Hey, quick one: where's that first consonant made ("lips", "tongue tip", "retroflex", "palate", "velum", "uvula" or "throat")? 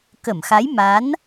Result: velum